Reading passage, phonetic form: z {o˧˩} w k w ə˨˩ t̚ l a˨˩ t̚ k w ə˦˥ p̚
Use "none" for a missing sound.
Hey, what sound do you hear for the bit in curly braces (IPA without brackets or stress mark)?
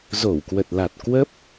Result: o˧˩